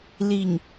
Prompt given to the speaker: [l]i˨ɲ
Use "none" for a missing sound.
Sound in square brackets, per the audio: l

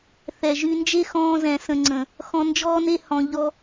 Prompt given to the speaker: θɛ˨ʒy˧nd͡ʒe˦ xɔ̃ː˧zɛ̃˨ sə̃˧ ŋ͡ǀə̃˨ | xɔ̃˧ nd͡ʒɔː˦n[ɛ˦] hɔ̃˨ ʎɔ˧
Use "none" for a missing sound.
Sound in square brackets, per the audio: e˦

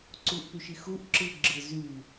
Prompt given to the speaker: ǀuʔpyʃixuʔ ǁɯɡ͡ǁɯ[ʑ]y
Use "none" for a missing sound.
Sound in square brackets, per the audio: z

